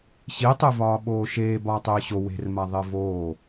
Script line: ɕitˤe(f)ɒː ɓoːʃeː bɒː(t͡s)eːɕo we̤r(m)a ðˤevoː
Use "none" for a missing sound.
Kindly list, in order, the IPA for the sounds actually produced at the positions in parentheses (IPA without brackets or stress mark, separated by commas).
v, tˤ, m